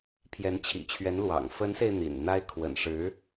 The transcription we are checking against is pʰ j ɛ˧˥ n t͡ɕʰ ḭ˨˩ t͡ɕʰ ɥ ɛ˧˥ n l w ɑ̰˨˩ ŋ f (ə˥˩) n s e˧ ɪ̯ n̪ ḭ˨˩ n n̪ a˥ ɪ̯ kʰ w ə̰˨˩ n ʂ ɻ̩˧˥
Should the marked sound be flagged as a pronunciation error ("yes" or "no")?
yes